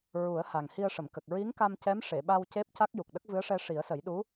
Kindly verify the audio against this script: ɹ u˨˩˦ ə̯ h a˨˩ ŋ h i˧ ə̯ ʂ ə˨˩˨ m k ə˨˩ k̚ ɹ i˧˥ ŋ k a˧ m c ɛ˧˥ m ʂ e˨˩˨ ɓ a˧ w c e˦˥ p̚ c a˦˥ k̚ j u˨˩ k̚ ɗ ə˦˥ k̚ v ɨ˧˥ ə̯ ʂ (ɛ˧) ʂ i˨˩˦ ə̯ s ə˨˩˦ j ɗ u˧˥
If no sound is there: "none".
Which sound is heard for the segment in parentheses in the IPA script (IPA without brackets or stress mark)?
ɛ˧